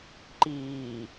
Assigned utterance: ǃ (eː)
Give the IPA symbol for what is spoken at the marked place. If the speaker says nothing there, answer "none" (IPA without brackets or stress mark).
iː